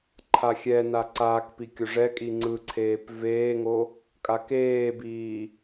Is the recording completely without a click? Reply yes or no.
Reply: no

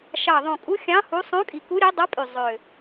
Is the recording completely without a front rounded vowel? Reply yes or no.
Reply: no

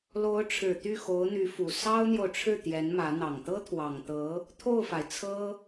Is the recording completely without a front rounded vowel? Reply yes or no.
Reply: no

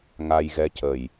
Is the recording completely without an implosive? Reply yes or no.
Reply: yes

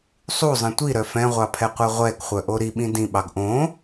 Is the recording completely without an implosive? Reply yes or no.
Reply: no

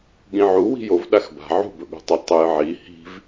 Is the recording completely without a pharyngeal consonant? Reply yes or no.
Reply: no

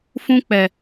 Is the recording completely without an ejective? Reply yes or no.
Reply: yes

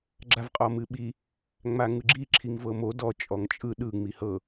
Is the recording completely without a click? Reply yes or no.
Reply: no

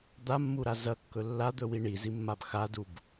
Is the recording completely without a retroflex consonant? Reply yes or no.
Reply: no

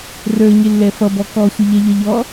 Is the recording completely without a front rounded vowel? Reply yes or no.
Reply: yes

